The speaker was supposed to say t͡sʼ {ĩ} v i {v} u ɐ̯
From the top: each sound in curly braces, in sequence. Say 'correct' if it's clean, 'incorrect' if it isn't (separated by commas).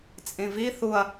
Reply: correct, incorrect